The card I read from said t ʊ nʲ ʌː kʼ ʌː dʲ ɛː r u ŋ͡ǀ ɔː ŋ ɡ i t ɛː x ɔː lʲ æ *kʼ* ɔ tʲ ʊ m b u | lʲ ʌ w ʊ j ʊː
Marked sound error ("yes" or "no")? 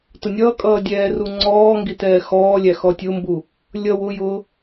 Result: yes